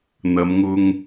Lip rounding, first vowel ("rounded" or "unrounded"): unrounded